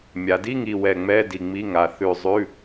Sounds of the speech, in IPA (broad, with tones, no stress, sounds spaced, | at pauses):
mʲ a˩˧ d i˧˥˧ ŋ i˧˩ w ɛ˧˩ ŋ͡m ɛ˧˥˧ d i˧˩ ŋ͡m i˧˥˧ ŋ a˧˩ θ ʉ˧˩ zˤ ʉ˧˥˧